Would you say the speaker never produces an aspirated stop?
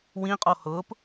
yes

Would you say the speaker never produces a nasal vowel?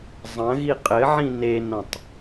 no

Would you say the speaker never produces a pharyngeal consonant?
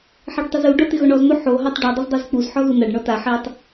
no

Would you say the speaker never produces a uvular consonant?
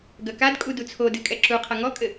no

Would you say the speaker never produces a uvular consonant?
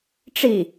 yes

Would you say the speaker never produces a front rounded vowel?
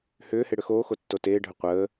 no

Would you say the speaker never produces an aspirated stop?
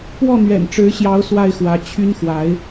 no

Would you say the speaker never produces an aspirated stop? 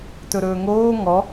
yes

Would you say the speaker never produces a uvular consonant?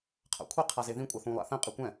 no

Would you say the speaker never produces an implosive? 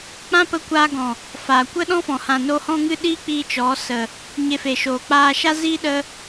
no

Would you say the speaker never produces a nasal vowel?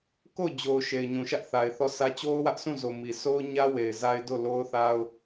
no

